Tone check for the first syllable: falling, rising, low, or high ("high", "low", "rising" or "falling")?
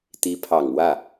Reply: rising